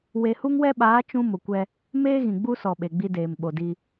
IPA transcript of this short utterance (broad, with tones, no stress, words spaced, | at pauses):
we˨hu˦ŋwɛ˦ɓaː˨˦ t͡ʃũ˦mʊ˨kʷɛ˦ | meː˦ɣĩ˨ɡ͡bu˦sɔ˨ ɓe˨ɡ͡bi˦deː˨m ɓo˨di˦